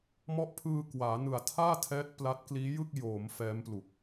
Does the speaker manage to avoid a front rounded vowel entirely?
yes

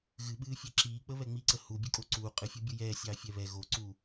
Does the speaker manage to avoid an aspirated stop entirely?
yes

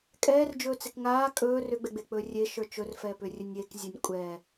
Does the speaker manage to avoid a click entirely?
yes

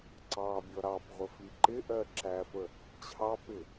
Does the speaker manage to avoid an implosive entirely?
yes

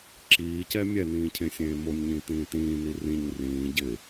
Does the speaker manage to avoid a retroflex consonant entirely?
yes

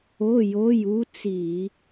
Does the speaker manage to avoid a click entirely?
yes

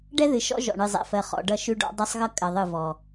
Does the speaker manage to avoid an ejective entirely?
no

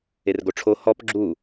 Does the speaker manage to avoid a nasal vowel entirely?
yes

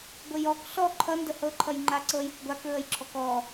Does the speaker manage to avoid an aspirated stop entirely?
no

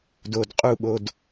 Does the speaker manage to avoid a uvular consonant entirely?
no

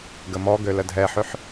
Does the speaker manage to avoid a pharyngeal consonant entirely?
no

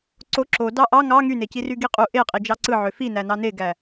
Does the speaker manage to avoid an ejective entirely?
no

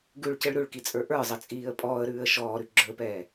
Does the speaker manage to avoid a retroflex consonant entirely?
no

